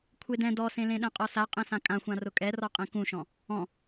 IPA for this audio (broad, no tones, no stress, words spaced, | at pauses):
kʷʰedɛ̃ dɔsẽlẽɗɛ̃ qʼɔsa qʼẽsãkʼãxʷã rʊkʼɛrɔ qʼẽkũʃɔ̃ | ɔ̃